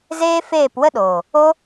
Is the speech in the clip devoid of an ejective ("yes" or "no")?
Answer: yes